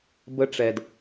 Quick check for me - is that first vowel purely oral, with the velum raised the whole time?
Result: yes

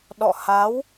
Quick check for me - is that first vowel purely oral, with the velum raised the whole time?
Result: yes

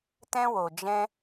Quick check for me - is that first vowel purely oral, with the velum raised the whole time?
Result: no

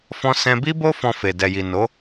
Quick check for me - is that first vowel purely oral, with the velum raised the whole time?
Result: no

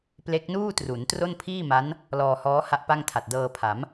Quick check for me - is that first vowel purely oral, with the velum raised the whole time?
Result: yes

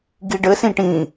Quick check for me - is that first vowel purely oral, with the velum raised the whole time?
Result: yes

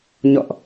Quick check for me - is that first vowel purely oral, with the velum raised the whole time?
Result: yes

